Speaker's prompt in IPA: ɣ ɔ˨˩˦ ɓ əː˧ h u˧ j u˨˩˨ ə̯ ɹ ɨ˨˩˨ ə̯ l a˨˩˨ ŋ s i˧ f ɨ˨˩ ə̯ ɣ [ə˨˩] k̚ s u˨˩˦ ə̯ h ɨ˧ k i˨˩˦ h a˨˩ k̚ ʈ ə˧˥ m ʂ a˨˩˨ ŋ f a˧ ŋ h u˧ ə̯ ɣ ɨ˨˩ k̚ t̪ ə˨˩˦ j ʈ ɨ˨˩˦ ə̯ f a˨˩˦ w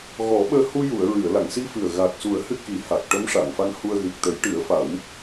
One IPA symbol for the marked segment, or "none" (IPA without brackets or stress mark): a˨˩